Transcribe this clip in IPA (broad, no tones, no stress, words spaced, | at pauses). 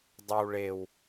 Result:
dˤɤw ɭew